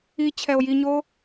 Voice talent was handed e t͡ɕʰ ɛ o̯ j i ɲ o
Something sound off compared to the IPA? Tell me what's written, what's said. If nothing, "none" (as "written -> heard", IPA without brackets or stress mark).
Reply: e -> i